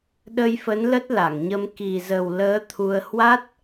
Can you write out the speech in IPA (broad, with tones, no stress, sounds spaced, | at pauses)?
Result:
ɗ ə˧ j f ə˨˦ n l ə˦˥ t̚ l a˧˩ ŋ ɲ ə˧ m k i˨˩ z ə˨˩ w l əː˨˦ t̪ʰ u˧ ə̯ h w a˦˥ t̚